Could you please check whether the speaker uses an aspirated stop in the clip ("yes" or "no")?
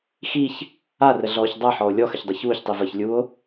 no